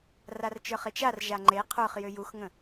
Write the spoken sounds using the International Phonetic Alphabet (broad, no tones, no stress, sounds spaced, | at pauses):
r a r t͡ʃ ə˞ χ e t͡ʃ a r ʒ a ŋ͡ǃ e qʰ ə˞ χ j ʏ j u x ŋ ə̃